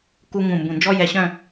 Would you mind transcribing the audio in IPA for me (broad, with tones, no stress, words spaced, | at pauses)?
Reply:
ku˥ ŋũ˧˩mbũ˧˩ nd͡ʒɔ˥jɛ˧ɕœ̃˥˧